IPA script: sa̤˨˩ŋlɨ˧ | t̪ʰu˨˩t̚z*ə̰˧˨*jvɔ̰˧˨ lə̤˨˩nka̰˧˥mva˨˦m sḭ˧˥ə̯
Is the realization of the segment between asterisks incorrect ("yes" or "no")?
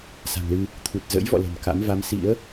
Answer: yes